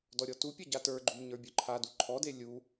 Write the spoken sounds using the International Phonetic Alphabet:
d ɔ ɾʲ ɔ t u pʲ a ɟ a t ə˞ ɡ͡ǃ u m ɲ ə˞ bʲ u ǃʰ a d u ǃʰ ɔ d e lʲ u

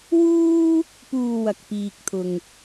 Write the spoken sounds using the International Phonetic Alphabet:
w uː˥ | p uː˧ w ɐ˨ k̚ p iː˨ k̚ t̪ʰ ʊ˨ ŋ

